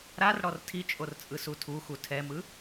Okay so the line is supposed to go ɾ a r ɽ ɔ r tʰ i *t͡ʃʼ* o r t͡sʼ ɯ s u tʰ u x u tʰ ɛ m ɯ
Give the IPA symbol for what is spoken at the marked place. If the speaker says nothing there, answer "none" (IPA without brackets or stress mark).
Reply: t͡ʃʼ